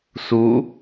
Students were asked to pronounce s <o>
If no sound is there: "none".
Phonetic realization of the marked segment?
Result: u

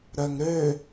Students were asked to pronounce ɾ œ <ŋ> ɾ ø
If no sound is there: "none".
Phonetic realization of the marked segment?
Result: ŋ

